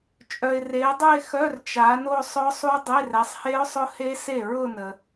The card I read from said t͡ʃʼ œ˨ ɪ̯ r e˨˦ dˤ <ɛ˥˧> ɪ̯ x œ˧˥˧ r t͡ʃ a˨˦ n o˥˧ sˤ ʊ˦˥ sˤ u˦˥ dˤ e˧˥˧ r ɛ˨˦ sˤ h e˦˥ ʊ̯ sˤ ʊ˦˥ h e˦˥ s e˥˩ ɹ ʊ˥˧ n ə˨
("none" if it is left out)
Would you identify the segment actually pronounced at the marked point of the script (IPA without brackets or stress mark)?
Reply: ə˥˧